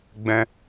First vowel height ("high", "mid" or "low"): mid